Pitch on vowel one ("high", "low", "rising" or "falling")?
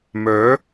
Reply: rising